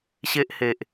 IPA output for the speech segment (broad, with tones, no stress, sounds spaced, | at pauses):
ɕ e˦ ʔ h e˨ ʔ